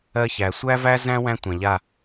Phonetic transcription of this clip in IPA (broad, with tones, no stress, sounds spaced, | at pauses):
ɜ˦ ç æ˨ sʷ æ˦ v æ˦ z æ̃˦ w æ̃˦ tʷ ã˨ ʎ a˦˨